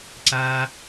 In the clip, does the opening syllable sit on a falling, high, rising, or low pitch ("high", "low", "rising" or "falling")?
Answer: low